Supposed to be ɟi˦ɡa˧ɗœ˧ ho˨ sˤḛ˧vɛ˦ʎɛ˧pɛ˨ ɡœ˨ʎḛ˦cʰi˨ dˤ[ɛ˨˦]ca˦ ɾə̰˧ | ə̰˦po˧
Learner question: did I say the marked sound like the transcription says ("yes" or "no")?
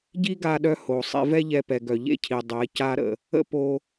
yes